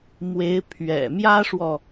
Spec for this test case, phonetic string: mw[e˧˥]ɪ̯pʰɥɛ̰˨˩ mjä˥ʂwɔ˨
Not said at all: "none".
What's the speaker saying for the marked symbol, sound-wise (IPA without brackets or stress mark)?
e˧˥